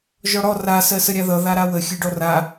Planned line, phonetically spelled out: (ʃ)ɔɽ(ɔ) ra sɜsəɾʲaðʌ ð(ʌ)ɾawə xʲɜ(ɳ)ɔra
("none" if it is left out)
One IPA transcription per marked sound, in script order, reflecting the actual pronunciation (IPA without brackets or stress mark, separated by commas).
ʒ, ɔ, a, ɖ